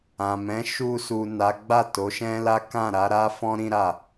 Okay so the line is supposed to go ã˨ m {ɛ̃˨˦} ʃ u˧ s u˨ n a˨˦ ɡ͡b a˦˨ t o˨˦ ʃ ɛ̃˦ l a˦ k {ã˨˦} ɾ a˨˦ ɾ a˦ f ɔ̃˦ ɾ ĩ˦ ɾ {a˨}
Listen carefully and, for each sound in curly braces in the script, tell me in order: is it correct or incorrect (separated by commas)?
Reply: correct, incorrect, incorrect